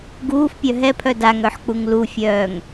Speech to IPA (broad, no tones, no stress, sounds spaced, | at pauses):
ɡ uː f pʲ œ ɦ ɛ pʰ œ d a ŋ œ ħ k͡p u ŋ l u fʲ œː ŋ